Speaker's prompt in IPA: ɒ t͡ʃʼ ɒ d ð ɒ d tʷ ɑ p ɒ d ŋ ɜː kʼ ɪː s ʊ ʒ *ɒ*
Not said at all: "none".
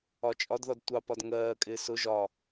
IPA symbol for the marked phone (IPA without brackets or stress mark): ɒ